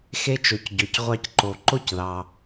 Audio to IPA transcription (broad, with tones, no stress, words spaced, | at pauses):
xe˦t͡ʃo˩c ɟɵ˩cʁʷɑ˦c ǃo˩ǃo˥cðɑ˩